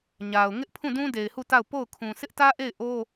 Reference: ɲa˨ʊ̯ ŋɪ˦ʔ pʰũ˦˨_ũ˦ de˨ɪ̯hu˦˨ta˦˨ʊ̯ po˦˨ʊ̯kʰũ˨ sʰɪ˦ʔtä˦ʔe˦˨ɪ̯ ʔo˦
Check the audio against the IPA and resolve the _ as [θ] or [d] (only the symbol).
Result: d